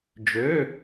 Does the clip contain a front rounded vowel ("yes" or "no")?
yes